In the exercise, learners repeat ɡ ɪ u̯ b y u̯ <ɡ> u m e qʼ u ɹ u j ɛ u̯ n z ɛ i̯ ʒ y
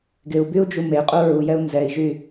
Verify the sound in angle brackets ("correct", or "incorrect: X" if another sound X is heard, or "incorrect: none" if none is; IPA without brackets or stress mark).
incorrect: d͡ʒ